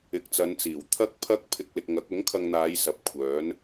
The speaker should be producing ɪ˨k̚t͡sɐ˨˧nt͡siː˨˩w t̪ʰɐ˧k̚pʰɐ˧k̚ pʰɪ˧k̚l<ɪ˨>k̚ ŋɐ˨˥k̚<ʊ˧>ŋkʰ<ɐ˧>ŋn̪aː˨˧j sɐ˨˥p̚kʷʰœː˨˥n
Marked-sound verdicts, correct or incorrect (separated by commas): correct, incorrect, correct